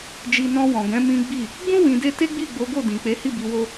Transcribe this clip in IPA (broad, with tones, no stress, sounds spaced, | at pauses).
d͡ʒ i˧ n ɔ̃˧ w ɔ̃˨ ɡ ɛ̃˨˦ m ĩ˦ ɡ͡b i˦˨ | ɡ͡b ũ˦ w ĩ˧ d e˦ t e˦ ɡ͡b i˦˨ ɡ͡b o˨˦ ɡ o˦˨ d ĩ˨ k͡p e˨˦ h i˦˨ b i˧ w o˦